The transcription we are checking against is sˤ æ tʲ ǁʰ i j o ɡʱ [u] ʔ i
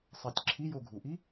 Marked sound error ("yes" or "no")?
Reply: no